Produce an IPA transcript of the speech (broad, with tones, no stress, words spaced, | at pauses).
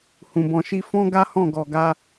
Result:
hũ˧bɔ̃˧ʃi˦ fɔ̃˦ɡa˦hɔ̃˦˨ ɡɔ˧ɡa˦